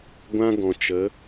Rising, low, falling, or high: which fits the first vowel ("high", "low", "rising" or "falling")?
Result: high